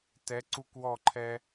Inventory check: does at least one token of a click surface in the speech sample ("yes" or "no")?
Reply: yes